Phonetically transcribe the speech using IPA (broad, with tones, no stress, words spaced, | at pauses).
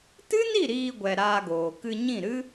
tɨ˦ni˦˨ ɾiː˧ɡʷɛ˨ ɾaː˧ɡoː˨ kɨ˧ɲĩ˦˨ɾɨ˦